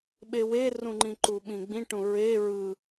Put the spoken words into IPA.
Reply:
ɓ e w e r ũ ŋ͡ǃ ĩ ǃ u ɓ ĩ ɡ͡b ĩ ʈ ũ ɹ e ɹ ɯ

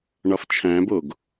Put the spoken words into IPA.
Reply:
ɳ ɒ f t͡ʃʰ æ̃ b o ɡ

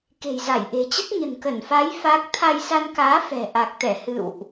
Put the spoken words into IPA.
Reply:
k e̤˨˩ j z a˧˩ j ʔ e̤˨˩ t͡ɕ ə˦˥ t̚ ɲ ə̤˨˩ n k ə˧˩ n f a˨˦ j f a˦˥ k̚ t̪ʰ a˧ j s a˧ n k aː˨˦ f ɛ̤˨˩ ʔ a˨˩ k̚ t̪ ɛ˧˩ h ɨ̰˧˨ w ʔ

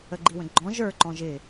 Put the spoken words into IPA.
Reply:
ə ɡ͡ǃ i w ə̃ ɡ͡ǃ ɔ̃ ʒ ə˞ ǃ ɔ̃ ʒ ɪ

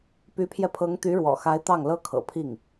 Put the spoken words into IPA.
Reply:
p y˧˥ pʰ j ɛ˧ pʰ ɤ˧˥ ŋ t̪ y˧˥ ɻ w ɔ̰˨˩ x a˧˥ ɪ̯ t̪ ɑ˥˩ ŋ l ɤ˥ kʰ ɤ̰˨˩ pʰ i˥˩ ŋ

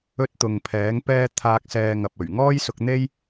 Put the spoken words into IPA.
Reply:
ɵ˧ t̚ t̪ ʊ˨ ŋ pʰ ɛː˨˥ ŋ p ɛː˥ t̪ʰ aː˧ k̚ s ɛː˧ ŋ ɐ˨ p̚ ɵ˨˩ ɥ ŋ ɔː˥ j s ʊ˧ k̚ n̪ e˥ j

